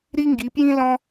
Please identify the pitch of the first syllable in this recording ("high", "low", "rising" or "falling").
high